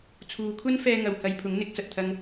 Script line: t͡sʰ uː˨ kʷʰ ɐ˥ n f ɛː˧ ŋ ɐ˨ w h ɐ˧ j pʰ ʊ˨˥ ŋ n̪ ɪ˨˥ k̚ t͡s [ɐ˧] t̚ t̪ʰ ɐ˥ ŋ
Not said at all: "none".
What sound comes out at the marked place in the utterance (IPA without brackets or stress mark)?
ɐ˨